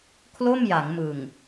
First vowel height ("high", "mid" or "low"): mid